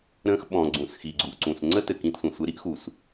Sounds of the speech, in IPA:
ɾ ə̃ː˧ x ɓ ɔ̃˨ ɡ͡ǀ ũ˨ s x i˨ ɡ͡ǀ u˨ ʔ ǀ ũ˨ s ŋ͡ǀ ə˦ t ɘ˨ k ĩ˧ t sʷ ə̃˨ sʷ ɘ˧ ɾ i˦ ʔ x u˨ s

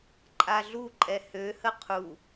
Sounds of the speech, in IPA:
ǃʼ a ɮ u ǃʼ ɛ h ø h ə qʰ u

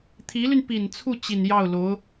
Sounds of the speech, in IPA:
t̪ʰ i˧˥ l y˧ n p i˨˩ n t͡sʰ u˥˩ t͡ɕ i˨˩ n j ɑ˥˩ ʊ̯ l o˧˥ ʊ̯

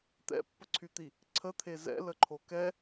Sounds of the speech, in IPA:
t̪ ɛ̰ pː ə ǀʰ y t̪ i | ǀʰ ə t̪ʰ e z ɛ̰ l ə ǃʰ o k ɛ

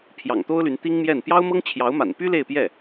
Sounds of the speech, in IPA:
pʰ j ɑ̰˨˩ ŋ t̪ o˥ ʊ̯ l y˧˥ n t̪ i˥ ŋ m j ɛ˥˩ n p j ɑ˥ ʊ̯ m ɤ˥ ŋ t͡ɕʰ j ɑ˧˥ ʊ̯ m a̰˨˩ n p y˥ l e˥˧ ɪ̯ p j ɛ˥˩

